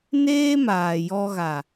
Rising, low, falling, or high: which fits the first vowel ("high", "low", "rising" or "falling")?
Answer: high